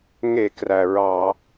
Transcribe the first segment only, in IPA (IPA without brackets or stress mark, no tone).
ŋ